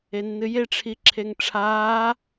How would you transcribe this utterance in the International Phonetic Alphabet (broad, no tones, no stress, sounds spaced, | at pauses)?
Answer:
e nː ɨ j e ʈ͡ʂʰ i ǁʰ e ŋ ʈ͡ʂʰ aː